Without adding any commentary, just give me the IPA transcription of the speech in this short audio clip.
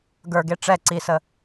ɡ ə˞ ɡ e ʈ͡ʂ ɛ ǀ i s ə

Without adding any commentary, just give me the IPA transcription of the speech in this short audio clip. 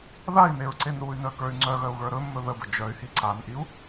ð a i̯ n e ɹ ǀ e n ɾ u y̯ n œ k ə˞ y̯ ŋ͡ǀ œ ɣ œ u̯ ɣ ə˞ ɾ ɵ mː ɵ ð ə b ə d͡ʒ œ y̯ h i ǀ a n ʔ i u̯

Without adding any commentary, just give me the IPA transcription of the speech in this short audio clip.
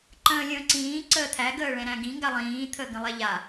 ǃ ə̃ː lʲ ə̃ː ǀ ĩː ǀ əː t̪ʰ æ ɡ əː ɭ ɛ̃ ɾ æ̃ ɡ ĩ ŋ ɡ a lˠ ĩː t̪ʰ əː ɡ ə̃ lˠ ɛ ʎ a

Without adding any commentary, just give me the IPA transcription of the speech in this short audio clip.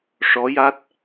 ʂ ɔ˧˥ j a˦˥ t̚

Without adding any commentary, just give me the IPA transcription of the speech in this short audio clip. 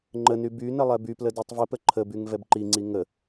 ŋ͡ǃ ə n y b y n ə lˠ ɛ b y p l ə d i tˤ v ə p ə ǃʰ ə b y ŋ v ɛ b ǃ i ŋ͡ǀ i ŋ ə

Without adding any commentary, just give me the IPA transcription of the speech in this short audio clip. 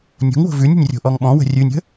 nʲ o̤ ŋ w o̤ v ʉ nʲ ə̤ nʲ rʲ o̤ ʔ ɔ ŋ ɓ ɔ̃ w ə̤ rʲ ʉ nʲ ə̤

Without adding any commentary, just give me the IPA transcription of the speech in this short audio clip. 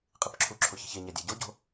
qʼ i p ǁʰ u ǁʰ o ç i̤ ç e ɲ æ dʲ æ ɟ o ɟ o̤

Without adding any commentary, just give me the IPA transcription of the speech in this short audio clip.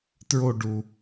t ɹ o ɖ u

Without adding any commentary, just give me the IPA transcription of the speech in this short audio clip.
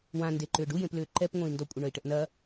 w ã n d e ǃ ʏː ɖ u j ẽ p l ʏː ǃ ɛ p ŋʷ ẽ i̯ n d ɔ kʷʼ ə ɳ œ i̯ ʈ ə ʔ n ɐ

